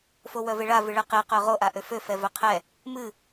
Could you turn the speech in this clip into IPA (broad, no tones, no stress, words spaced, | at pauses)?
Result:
fowœveɭa vɨɭɛqe qœʁo ʔaʔøfø fɛvœqʰɛ | mɨ